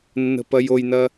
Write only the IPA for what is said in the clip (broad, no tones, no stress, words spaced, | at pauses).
nːə̤pɐjojnɐ